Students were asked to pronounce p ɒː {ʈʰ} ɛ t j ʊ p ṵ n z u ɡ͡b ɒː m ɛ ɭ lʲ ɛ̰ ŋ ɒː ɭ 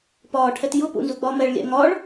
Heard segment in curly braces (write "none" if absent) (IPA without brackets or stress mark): ʈʰ